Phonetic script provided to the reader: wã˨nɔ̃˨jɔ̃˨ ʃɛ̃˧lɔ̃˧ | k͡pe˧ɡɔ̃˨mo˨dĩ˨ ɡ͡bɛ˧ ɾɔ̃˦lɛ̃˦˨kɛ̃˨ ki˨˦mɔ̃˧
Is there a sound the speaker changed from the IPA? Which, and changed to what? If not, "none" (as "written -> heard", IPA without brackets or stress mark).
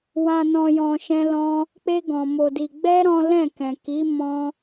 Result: ĩ˨ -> i˨